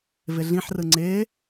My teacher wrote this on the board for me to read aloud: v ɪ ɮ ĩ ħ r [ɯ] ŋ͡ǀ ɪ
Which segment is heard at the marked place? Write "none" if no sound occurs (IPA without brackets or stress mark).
ɯ